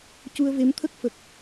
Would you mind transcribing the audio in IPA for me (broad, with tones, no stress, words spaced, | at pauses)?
cu˧ə̯ve˧˥mt̪ʰə˦˥k̚ fə˨˩k̚